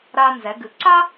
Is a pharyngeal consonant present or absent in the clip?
absent